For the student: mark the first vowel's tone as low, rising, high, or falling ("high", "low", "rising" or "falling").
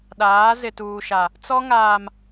rising